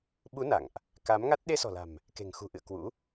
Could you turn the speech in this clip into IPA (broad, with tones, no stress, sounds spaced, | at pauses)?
ɓ u˨˦ n a̰˧˨ ŋ ʔ | k a˨˦ m ŋ a˦˥ t̚ ɗ e˧ s ɔ̤˨˩ l a̤˨˩ m | k e̤˨˩ ŋ x ṳ˨˩ ʔ ɨ̰˧˨ ə̯ k w ṵ˧˥